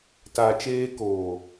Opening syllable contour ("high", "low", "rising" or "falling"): low